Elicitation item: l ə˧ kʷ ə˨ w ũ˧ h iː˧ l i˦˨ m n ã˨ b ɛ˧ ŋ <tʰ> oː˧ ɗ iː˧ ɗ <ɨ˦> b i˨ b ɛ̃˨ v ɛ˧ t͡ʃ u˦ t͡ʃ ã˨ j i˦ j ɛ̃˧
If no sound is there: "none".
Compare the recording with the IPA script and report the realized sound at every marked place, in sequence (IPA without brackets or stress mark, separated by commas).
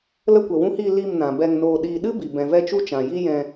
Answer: n, ɨ˦